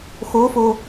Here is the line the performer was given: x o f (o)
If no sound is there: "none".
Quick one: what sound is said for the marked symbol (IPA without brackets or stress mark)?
o